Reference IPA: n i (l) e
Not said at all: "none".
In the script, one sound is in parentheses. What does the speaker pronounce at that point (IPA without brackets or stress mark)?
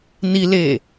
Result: l